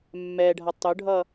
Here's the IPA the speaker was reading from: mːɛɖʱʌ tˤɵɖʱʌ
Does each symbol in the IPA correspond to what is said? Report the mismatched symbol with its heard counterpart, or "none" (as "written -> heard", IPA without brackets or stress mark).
none